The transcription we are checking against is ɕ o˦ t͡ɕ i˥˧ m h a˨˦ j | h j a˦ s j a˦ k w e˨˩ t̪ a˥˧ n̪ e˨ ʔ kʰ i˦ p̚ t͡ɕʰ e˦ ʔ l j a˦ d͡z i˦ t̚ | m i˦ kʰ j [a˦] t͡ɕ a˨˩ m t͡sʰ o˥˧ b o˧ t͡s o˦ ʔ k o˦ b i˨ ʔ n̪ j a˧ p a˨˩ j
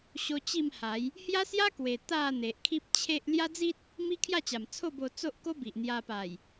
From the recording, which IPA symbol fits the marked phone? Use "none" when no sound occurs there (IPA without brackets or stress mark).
a˥˧